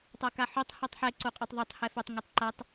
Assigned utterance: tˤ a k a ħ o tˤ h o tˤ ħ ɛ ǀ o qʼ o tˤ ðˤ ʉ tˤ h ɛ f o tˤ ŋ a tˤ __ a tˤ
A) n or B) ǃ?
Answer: B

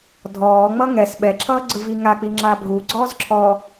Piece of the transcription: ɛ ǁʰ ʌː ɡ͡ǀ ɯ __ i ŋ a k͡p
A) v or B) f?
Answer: A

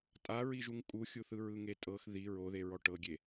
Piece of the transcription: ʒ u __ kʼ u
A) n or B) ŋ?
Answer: B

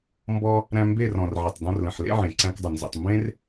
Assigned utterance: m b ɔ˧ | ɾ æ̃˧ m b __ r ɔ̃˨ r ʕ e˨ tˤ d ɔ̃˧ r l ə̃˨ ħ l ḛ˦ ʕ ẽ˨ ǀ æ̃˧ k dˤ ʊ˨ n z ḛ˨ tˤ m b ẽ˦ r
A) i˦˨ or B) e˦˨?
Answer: B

